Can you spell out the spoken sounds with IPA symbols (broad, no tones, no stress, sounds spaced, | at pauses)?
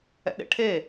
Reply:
ɛ̰ ɗ ḛ ʈʰ e